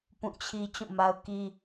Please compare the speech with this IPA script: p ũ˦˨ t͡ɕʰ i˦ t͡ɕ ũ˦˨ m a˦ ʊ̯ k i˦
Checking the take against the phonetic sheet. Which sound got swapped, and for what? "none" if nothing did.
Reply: none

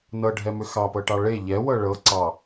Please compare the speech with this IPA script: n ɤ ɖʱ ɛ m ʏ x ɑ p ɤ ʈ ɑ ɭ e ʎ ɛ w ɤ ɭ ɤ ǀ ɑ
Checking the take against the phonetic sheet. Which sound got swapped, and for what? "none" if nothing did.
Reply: none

